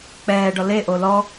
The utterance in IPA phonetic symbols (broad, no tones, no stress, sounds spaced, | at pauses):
k͡p ɛː ɖ ɔ l e ʔ o l ɔ